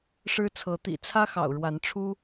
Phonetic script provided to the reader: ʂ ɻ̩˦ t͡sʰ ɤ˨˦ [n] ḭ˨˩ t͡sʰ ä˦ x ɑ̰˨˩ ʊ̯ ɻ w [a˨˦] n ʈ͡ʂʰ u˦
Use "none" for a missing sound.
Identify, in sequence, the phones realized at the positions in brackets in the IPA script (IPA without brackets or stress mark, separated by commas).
t̪, a˨˦